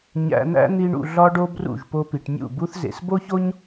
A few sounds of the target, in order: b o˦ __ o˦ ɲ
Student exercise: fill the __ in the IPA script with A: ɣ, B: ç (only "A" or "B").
B